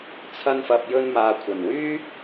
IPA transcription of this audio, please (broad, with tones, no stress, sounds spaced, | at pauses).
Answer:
t͡sʰ ɐ˧ n f ɐ˨ p̚ j ɵ˧ n m aː˨ kʷʰ ɐ˨˩ n w yː˥